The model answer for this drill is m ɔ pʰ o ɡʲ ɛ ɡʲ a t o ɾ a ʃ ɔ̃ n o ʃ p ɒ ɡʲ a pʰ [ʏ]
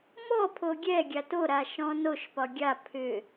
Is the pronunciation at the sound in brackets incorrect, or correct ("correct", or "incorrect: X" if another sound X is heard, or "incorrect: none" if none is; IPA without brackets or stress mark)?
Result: correct